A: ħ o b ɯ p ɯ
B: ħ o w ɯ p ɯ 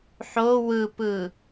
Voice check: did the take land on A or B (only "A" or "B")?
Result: B